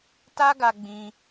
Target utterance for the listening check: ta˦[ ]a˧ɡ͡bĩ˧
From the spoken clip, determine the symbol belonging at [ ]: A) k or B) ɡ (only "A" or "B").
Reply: B